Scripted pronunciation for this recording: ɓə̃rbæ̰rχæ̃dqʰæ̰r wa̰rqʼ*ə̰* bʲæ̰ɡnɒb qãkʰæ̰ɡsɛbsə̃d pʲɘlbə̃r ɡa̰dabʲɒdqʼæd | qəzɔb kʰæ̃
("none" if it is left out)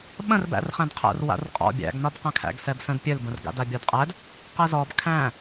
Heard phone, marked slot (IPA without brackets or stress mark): ɔ̰